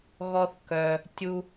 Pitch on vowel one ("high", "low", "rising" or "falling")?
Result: high